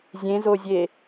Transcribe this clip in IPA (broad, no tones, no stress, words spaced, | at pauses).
zʲẽzozʲe